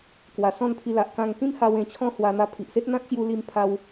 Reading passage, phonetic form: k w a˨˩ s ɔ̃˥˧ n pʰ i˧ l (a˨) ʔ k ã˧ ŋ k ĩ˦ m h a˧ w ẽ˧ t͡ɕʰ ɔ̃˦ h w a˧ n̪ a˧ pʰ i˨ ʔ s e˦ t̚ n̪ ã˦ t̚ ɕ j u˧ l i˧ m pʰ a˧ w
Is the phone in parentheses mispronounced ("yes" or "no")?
no